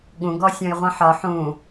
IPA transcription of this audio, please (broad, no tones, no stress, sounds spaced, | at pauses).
ɠ ũ ɡ ɔ sʲ ɔ̃ j ʁʷ ĩ ħ ɒ ħ ũ